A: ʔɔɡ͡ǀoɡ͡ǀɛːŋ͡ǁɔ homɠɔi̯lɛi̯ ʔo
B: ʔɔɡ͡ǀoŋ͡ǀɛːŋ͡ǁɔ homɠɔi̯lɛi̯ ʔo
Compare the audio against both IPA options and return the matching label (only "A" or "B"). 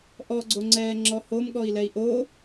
B